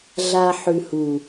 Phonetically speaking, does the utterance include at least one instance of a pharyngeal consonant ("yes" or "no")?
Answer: yes